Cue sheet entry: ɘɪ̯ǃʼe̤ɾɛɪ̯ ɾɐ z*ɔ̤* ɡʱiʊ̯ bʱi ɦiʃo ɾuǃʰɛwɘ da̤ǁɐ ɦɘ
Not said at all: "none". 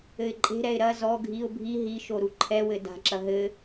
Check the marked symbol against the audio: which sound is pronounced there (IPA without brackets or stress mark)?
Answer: ɔ